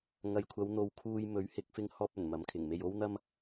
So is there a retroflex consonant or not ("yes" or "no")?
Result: no